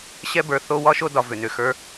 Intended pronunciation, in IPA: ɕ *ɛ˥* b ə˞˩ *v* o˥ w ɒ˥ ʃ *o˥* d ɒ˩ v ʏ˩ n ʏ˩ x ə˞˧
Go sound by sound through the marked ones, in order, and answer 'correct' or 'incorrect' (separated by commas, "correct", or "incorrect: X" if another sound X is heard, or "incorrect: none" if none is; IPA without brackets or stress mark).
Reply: correct, incorrect: θ, correct